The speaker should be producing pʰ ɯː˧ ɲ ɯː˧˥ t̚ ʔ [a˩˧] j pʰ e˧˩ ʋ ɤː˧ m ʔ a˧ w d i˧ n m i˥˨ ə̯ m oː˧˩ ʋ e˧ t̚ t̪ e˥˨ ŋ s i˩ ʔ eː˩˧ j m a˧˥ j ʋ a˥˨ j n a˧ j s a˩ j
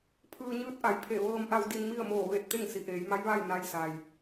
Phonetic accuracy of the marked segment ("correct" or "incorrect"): correct